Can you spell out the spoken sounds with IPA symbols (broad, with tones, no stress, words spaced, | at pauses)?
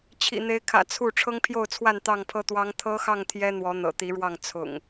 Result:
t͡ɕʰḭ˨˩n̪e˨˦ɪ̯kʰä̰˨˩ t͡sʰu˥˨ ʈ͡ʂʰɤ˦ŋpʰjo˥˨ʊ̯t͡sʰwa˥˨n t̪ɑ˥˨ŋpʰɤ˦t̪wɑ˦ŋ t̪ʰɤ˦xɑ˥˨ŋ t̪ʰjɛ˦ n̪wɔ˨˦ n̪ɤ̰˨˩t̪i˨˦ɻwɑ˥˨ŋ t͡sʰʊ̰˨˩ŋ